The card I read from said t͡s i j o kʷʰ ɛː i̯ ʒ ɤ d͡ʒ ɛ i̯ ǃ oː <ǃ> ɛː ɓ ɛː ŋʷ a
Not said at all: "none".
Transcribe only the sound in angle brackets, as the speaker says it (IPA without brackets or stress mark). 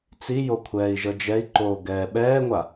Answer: ɡ